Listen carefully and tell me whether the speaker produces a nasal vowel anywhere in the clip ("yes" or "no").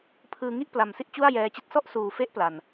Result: no